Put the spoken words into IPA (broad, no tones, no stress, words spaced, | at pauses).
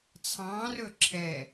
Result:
t͡sʰɑ̃rɵ ǁʰɛ